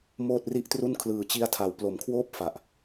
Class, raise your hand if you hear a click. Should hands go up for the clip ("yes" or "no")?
no